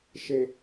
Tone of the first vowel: low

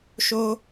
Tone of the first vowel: high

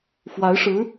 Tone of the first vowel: rising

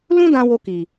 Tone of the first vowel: high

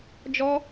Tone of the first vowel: high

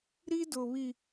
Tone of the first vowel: high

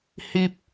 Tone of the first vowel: high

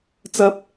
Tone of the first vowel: high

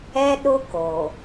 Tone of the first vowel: high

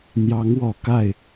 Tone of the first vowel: rising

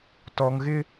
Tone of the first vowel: low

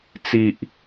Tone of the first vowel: low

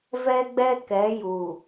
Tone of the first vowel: high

